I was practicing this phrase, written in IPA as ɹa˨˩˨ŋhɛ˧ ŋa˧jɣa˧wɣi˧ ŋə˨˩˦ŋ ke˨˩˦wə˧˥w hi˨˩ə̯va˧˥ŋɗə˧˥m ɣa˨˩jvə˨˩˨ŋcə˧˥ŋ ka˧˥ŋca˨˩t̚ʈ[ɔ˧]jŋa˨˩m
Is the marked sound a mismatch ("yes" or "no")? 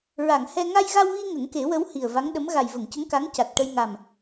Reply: yes